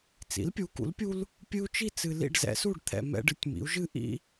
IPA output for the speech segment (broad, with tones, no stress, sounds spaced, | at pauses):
t͡s ḭ˩˥ l pʲ u˩˥ k ṵ˩˥ l pʲ u˦ l | pʲ ɨ˦ u̯ t͡ʃ i˥˨ t͡s ɨ˨ l ḭ˥˨ ɖ z ɛ̰˩˥ s u˥˨ ɖ t̪ʰ ɛ̰˨ m ɛ̰˦ ɖ ɨ˩˥ tʲ m ḭ˩˥ u̯ ʒ ɨ˦ ʔ ḭ˦